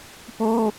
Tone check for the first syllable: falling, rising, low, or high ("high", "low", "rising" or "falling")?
high